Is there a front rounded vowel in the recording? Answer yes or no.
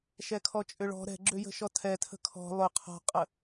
yes